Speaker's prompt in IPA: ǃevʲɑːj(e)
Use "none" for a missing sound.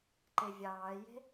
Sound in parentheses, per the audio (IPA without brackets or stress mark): e̤